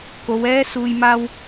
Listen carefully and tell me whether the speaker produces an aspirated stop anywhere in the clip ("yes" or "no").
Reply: no